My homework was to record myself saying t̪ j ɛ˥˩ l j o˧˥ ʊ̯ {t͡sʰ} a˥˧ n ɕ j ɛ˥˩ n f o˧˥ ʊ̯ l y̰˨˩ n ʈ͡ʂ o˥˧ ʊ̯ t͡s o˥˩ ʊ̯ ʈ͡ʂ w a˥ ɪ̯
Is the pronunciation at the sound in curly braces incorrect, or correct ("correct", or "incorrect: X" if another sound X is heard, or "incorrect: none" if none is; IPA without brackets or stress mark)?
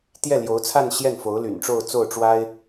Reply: correct